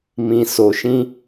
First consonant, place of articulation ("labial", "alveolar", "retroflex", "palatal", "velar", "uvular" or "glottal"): labial